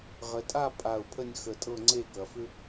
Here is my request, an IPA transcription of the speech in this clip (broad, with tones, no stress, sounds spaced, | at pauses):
ʁ ə˩˧ tʼ a˥˧ pʼ a˧˩ ʊ̯ pʰ ə˥˧ nʲ x ə˧˩ tʼ ɤ˥˧ ŋ͡ǀ e˥˧ k ɐ˩˧ f ʏ˥